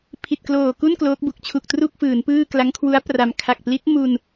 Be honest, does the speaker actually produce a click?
no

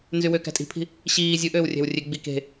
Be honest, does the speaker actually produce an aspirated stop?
yes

